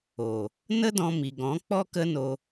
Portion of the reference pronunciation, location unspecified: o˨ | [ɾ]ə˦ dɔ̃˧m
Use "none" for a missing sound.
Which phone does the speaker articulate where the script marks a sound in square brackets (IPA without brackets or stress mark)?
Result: n